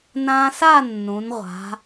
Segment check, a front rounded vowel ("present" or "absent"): absent